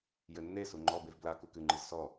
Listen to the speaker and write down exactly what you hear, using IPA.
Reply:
j ɘ nː e s u ŋ͡ǃ ɔ b e v b l a k u k ɨ ŋ͡ǃ ɨ z s ɔ

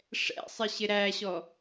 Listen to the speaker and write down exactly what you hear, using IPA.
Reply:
ʂ ɛ̰ sˤ ɪ ɕ ɪ ɾ æ ɕ ɔ

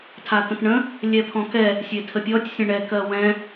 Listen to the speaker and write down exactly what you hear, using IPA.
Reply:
tʰ a t̪ ə̃ t ɳ ə̃ | lʲ ɛ pʰ ɔ̃ k ɛ | sʲ e tʰ ə pʲ ɔ tʲ sʲ ə̃ ɳ ɛ k ɜ w ɛ̃

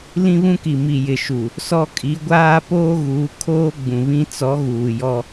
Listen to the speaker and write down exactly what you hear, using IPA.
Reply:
l ĩ˦ β ũ˦ k i˨ m i˨ j ɪ˨ ʃ u˨ | s ɔ˦ kʼ i˨˦ ɡʷ aː˦ p oː˦ ɣ uː˨˦ kʰ oː˦ ɡ͡b ũ˨ β ĩ˦ t͡s ɔ˨˦ ɣ uː˨ j ɔ˦

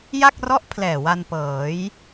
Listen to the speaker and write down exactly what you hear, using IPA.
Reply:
j a˥˩ k̚ r ɔ˦˥ ʔ pʰ l ɛː˨˩ w a˧ n p ɤː˩˦ j

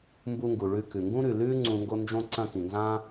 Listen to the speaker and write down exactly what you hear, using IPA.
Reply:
m b u˦ ŋ ɡ u˨ ɭ ʉ˦˨ k ʉ˨ ŋ ɡ ũ˦ ɾ ʉ˨ l ʉː˦ ŋ͡ǀ ũ˧ ŋ ɡ o˦ n d͡ʒ õ˦ ǀ ɐ̃˦˨ k ĩ˨ n z ã˦

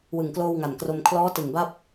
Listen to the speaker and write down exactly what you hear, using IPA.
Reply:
w ɯ˨˩ ŋ k l oː˧ w ŋ a˨˩ n k r o˧ m kʰ l ɔː˦˥ t ɯ˨˩ ŋ b a˦˥ p̚

